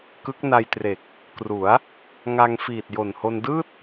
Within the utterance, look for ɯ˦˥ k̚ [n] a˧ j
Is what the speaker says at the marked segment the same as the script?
yes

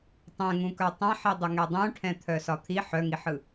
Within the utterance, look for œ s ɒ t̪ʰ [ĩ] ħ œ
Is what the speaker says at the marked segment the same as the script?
no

